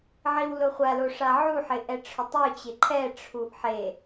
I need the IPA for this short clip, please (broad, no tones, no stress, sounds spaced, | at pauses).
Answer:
ʕ i w l ʊ χʷ a l o ʂ a ʕ u ħ ɪ ʔ ɛ ʈ͡ʂʰ ʊ tˤ u t͡ɕ ɪ ǃʰ ɛ ʈ͡ʂʰ u ʔ ħ e